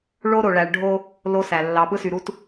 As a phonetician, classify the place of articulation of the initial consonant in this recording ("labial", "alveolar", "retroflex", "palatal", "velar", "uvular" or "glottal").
retroflex